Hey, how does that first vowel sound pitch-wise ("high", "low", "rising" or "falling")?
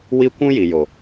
high